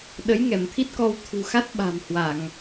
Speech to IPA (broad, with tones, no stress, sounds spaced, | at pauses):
ɗ ə˨˦ j ŋ ɛ˧˩ m t̪ʰ i˦˥ t̚ k ɔ˧ w t̪ʰ ṳ˨˩ x a˦˥ t̚ ɓ a̤˨˩ m h w a˧˩˨ ŋ